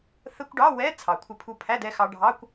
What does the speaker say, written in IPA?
θ ə˧˥˧ kʷ ɖ ɑ˧˥˧ w ɛ˧˥˧ t͡sʰ ɑ˩˧ kʷʰ ɪ˧ pʰ u˧ pʰ æ˧˥˧ d ɛ˧ x ɑ˧ ɖʱ ɑ˧˥˧ kʷ

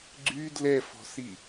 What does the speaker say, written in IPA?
ɡ͡ǀ y d l ɛ f ɔ̤ s i

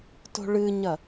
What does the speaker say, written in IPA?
t o̤ ɭ ɨ ɲ ɐ

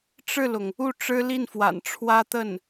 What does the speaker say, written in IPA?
ʈ͡ʂ ɻ̩˥˩ l ʊ˩ ŋ | u˥˩ ʈ͡ʂ ɻ̩˥ l i˥˩ n f w a̰˨˩ n ʈ͡ʂʰ w ä˥ t̪ ə˥˩ n

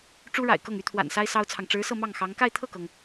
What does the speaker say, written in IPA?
ʈ͡ʂ u˥ ɻ a̰˨˩ ɪ̯ k ɤ˥˩ ŋ y˥ t̪ʰ w a̰˨˩ n s a˥ ɪ̯ s ɑ˥ ʊ̯ t͡sʰ ɑ˨ ŋ ʈ͡ʂ ɻ̩˧˥ s ɤ˥˧ m ɑ˥˩ ŋ x ɑ˧˥ ŋ k a˥˧ ɪ̯ t̪ʰ ɤ˥˩ k ɤ˩ ŋ

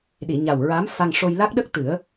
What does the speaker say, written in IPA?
ɗ i˨˩˨ ɲ a˨˩ w ɹ a˧˥ m f a˧ ŋ ʂ o˧ j l a˦˥ k̚ ɗ ə˦˥ k̚ t̪ ɨ˨˩˦ ə̯

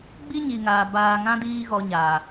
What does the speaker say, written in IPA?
ɡ͡b i˦ ɲ i˨ ŋ aː˨ b aː˧ ŋ ã˦ d iː˧ ɣ ɔ˨ ɲ aː˨

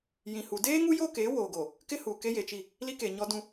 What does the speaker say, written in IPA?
j ĩ˨ h u˨ d eː˦ ŋ u˦ j o˦ k eː˨˦ w oː˨ ɡ o˨ | k ɪ˦ h u˨ k e˦ j e˨ t͡ʃ i˦˨ | l i˦ k e˨ ɲ ɔ˦ d ũ˦

